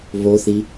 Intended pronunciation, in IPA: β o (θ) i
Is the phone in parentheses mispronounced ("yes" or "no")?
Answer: no